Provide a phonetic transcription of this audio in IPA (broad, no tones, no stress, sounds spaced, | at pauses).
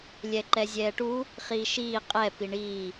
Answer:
lʲ ɛ ǃ ɛ zʲ ɛː ʈ u | χ iː ʃ iː qʼ ɛ p i ɳ iː